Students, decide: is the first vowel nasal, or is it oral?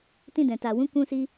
nasal